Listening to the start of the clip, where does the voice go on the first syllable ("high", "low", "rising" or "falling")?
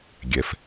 low